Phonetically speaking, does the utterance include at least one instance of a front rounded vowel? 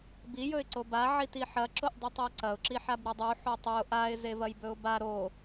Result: no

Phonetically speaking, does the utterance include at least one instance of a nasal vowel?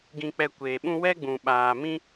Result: yes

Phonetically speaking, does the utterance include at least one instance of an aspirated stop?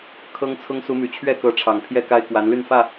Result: yes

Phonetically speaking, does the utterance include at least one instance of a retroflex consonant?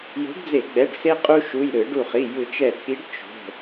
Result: yes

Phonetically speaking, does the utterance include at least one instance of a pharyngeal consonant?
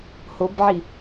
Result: yes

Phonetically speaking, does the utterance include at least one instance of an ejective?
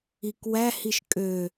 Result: yes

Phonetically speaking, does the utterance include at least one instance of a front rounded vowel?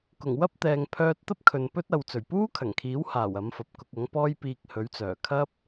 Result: yes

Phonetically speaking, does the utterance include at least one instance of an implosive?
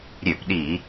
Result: yes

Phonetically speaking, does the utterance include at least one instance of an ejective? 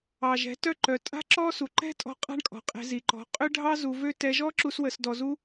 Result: yes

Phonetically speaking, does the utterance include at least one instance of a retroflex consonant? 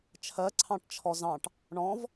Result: yes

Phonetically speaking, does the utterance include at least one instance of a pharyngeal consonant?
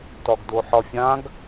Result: yes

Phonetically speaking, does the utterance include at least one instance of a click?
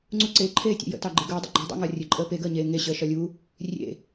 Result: yes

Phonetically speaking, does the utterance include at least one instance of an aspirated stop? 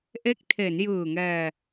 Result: yes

